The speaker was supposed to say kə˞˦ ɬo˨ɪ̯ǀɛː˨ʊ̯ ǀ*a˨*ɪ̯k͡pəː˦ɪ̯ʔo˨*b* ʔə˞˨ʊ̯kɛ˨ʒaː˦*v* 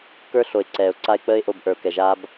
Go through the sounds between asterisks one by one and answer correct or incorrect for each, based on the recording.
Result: incorrect: a˦, correct, incorrect: b

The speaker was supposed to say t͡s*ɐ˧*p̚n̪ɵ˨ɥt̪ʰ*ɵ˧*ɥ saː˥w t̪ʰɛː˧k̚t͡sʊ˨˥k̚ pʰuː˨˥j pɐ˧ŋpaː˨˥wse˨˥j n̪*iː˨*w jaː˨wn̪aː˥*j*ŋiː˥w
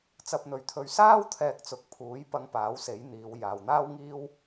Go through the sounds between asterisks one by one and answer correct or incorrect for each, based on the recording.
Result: correct, correct, incorrect: iː˨˧, incorrect: w

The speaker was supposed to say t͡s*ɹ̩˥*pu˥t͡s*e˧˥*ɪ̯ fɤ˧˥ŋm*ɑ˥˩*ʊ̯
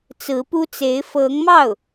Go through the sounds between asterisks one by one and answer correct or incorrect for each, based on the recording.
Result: incorrect: ɹ̩˧˥, correct, correct

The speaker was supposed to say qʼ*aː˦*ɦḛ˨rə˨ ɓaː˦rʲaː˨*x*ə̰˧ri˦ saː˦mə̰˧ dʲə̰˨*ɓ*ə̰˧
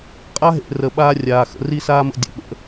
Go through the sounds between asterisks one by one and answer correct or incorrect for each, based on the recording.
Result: incorrect: a˦, correct, correct

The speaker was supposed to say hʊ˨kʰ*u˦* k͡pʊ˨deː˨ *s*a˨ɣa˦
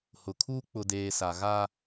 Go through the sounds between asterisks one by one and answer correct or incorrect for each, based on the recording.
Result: correct, correct

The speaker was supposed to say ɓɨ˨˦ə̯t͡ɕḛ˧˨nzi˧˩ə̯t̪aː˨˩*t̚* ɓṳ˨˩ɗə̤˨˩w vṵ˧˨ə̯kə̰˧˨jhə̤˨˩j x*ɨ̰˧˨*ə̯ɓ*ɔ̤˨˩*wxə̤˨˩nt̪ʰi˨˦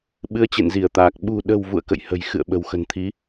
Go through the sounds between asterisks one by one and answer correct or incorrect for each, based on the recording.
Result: incorrect: k̚, correct, incorrect: ə̤˨˩

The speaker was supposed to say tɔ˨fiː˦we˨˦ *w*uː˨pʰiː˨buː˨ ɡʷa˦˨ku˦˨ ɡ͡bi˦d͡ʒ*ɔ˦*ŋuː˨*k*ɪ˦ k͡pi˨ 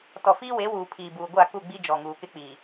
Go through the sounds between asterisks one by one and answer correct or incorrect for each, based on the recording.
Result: correct, incorrect: ɔ˨, correct

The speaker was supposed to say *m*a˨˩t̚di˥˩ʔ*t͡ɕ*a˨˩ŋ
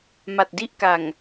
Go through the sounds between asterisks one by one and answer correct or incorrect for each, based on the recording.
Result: correct, incorrect: k

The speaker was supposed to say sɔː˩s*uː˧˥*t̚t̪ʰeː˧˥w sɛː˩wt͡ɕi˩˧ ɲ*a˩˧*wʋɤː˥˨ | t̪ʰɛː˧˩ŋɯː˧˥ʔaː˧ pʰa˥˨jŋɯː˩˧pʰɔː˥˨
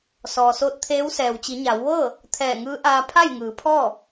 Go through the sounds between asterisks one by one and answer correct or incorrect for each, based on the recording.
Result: incorrect: oː˧˥, correct

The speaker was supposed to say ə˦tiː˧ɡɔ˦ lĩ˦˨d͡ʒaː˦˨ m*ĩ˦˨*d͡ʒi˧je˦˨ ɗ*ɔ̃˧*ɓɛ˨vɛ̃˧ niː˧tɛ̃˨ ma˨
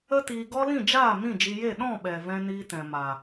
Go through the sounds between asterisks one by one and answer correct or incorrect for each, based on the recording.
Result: correct, incorrect: ɔ̃˦˨

